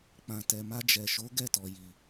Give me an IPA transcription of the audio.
k͡p ã˨ t ɛ˨ m a˧ d͡ʒ ɛ˨ ʃ o˨˦ ɡ ɛ˦˨ t ɔ˨ j i˨

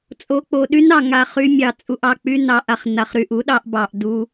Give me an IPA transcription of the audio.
t͡sʼ o˧ k͡p o˨ ɗ y˦ n ɑ˨ ŋ a˧ χ y˧ mʲ ɑ˨ t͡sʼ u˨ ʔ ɑ˨ k͡p y˧ n ɑ˨ ʔ a˨ χ n a˨ χ ɾ y˨ ʔ u˨˦ ɗ ɑ˧ ʔ b ɑ˨ ʔ d u˧

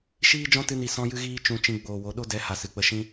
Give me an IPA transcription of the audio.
ʃ iː˦ d͡ʒ ɔ̃˦ t ɨ˧ n i˨ s ɔ̃˧ j ɨ˧ ɣ iː˧ t͡ʃ ũ˧ t͡ʃ ĩ˧ ɡ͡b oː˨ w o˨˦ ɗ o˦ d ɛ˨˦ h a˨ s ɨ˨ k͡p ə˧ ʃ ĩ˦

